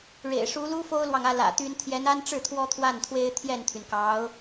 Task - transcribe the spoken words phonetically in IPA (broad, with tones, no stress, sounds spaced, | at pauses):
ɻ ḛ˨˩ ɪ̯ ʂ u˧˥ l u˥ f o˥ ʊ̯ l w ɑ˨ ŋ ä˥˩ l ä̰˨˩ t̪ y˥ n t̪ʰ j ɛ˧˥ n a˥ n ʈ͡ʂ ɻ̩˥˩ t̪ʰ w ɔ˥ t̪ʰ w a˥˩ n t̪ʰ w e˥ ɪ̯ t̪ʰ j ɛ˥˩ n t̪ʰ y˩ n k ɑ˧˥ ʊ̯